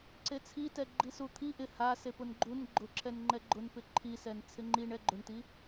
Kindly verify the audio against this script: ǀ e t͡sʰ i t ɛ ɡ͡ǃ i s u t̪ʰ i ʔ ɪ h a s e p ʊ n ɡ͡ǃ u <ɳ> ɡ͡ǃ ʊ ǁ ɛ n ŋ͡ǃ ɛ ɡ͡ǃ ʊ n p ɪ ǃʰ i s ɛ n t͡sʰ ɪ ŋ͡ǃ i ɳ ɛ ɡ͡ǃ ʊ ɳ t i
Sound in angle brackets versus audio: incorrect: n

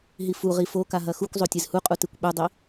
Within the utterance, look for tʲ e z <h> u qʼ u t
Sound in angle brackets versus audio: correct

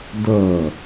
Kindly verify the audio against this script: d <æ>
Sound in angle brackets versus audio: incorrect: ɐ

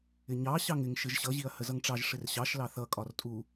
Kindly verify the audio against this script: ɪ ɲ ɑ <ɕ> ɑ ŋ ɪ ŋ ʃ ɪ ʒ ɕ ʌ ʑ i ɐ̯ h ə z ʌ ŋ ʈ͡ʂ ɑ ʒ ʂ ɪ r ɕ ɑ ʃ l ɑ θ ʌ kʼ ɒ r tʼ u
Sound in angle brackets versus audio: correct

